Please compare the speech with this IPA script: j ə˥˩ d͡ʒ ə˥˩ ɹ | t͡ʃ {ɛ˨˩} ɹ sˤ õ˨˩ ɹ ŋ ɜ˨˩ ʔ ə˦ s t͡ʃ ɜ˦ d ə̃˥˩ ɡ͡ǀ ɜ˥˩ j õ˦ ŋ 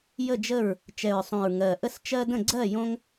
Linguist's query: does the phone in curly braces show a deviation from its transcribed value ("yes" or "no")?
no